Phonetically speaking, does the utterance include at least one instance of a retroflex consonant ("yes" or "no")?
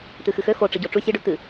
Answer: yes